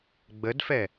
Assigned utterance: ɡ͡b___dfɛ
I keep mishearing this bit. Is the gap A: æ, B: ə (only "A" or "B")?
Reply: B